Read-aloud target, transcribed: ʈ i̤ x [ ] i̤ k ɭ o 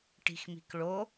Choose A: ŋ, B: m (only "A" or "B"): B